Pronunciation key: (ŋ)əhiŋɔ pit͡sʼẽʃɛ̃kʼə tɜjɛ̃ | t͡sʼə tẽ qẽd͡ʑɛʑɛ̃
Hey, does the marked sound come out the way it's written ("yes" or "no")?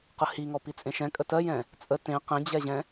no